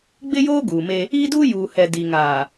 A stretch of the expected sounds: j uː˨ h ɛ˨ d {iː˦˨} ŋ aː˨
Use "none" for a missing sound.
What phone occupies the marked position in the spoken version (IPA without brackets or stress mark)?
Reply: iː˨